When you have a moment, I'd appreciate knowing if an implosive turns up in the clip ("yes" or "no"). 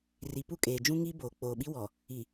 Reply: yes